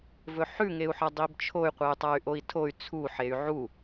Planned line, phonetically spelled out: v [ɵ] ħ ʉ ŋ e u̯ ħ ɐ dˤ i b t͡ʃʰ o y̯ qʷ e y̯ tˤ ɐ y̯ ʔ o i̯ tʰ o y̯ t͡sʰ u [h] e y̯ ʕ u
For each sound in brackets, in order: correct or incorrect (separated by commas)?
correct, incorrect